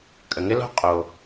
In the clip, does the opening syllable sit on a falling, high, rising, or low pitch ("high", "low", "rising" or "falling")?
low